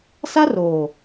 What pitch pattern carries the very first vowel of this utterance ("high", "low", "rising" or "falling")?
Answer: high